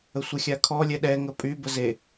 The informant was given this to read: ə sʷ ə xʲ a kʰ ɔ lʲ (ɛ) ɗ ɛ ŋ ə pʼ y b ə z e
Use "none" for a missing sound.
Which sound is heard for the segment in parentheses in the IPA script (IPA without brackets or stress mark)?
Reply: ɛ